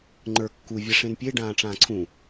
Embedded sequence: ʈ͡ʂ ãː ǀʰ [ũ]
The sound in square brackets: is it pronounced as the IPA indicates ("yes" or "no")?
yes